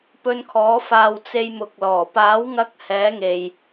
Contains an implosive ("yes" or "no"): no